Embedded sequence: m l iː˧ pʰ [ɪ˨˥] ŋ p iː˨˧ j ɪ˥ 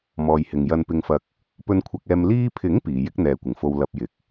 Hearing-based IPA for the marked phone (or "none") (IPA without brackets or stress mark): ɪ˨˥